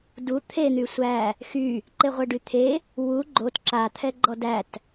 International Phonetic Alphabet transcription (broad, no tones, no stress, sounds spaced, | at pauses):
d u t̪ʰ e n̪ y sʷ æ | x y | ǃ e ʁʷ ɛ ɖ y t̪ʰ e | w u ɡ͡ǃ o t ǁ a t̪ʰ ɛ ɡ͡ǃ ɔ d æ t